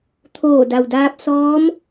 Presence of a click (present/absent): absent